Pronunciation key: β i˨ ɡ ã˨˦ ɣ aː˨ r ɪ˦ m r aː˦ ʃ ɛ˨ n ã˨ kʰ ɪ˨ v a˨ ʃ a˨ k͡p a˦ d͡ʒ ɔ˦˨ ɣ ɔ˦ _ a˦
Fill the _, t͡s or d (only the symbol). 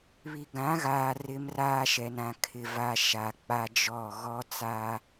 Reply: t͡s